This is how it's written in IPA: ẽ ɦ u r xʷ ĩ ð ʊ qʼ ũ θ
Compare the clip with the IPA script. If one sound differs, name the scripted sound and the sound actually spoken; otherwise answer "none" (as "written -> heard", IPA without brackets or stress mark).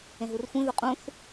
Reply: none